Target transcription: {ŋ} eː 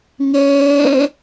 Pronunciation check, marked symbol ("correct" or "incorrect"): correct